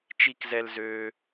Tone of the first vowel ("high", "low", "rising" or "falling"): high